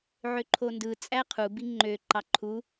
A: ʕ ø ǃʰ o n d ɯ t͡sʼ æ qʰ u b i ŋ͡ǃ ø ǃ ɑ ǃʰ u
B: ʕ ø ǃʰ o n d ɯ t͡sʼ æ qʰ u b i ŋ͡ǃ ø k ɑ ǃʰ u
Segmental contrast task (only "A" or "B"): A